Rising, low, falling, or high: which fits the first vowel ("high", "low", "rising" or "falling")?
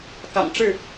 low